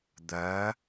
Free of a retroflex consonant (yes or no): yes